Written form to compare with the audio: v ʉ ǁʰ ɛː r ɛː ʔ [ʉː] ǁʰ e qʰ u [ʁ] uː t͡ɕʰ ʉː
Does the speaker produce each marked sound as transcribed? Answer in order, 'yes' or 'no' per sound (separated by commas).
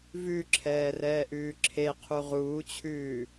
yes, yes